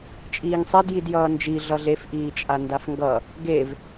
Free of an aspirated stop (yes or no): yes